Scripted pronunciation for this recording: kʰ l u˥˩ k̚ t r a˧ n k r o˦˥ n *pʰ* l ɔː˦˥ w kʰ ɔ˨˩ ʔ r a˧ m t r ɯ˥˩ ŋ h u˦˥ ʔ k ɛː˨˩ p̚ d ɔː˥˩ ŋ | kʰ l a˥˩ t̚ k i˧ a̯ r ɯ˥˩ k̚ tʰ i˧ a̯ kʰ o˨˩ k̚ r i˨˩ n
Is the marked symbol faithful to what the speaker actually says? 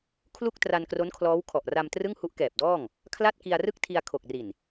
no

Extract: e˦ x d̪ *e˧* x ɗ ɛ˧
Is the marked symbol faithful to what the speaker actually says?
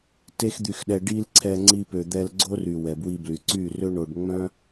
no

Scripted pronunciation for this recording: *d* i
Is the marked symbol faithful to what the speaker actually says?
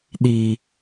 no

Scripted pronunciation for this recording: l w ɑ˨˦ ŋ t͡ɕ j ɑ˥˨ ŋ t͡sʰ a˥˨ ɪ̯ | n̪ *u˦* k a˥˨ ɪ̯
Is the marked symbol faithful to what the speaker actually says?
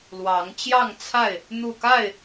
no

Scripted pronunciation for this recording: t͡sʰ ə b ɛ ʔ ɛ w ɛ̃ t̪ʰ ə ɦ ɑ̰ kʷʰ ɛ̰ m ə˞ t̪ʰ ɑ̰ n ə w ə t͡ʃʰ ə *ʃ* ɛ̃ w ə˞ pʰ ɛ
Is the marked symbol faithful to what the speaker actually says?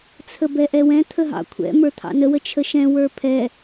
yes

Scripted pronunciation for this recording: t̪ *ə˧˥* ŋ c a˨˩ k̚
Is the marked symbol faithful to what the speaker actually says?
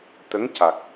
yes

